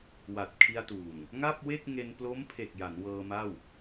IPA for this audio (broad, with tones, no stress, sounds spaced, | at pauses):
w a˨˩ t̚ kʰ i˧ a̯ t uː˨˩ ŋ | ŋ a˥˩ p̚ w e˥˩ k̚ ŋ e˧ n p l o˦˥ m pʰ e˨˩ k̚ j a˩˦ n w ɤː˧ m a˥˩ w